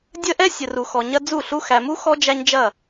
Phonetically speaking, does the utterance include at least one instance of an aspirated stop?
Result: no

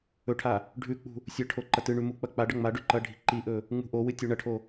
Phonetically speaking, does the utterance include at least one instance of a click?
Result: yes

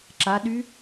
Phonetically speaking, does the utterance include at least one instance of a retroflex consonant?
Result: no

